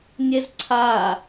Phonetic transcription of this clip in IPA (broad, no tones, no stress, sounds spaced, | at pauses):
nʲ ɛ z ǀʰ a